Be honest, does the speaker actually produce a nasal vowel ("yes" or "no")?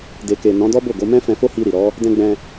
yes